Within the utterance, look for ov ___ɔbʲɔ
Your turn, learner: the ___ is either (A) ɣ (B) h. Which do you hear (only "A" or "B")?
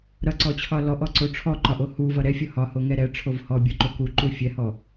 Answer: B